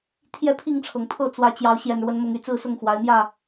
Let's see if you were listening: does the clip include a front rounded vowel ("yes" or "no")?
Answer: yes